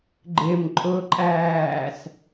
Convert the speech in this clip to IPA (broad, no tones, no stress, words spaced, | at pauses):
ɡ͡ǃɪm ǃʼʊǃʼæːs